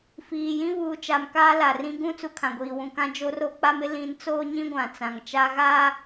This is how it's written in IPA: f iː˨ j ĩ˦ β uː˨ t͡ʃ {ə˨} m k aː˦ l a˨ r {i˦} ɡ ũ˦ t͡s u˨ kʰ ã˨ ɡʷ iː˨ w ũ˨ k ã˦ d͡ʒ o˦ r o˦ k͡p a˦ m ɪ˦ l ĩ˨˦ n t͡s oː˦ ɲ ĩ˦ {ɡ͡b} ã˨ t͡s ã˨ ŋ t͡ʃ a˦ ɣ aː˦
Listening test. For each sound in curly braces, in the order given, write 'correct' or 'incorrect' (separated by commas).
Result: incorrect, incorrect, incorrect